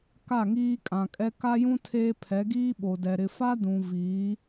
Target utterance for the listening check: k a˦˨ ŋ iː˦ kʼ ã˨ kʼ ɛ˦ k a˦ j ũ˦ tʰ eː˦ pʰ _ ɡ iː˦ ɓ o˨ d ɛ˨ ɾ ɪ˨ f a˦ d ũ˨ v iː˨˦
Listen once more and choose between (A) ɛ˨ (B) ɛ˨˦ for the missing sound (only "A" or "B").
B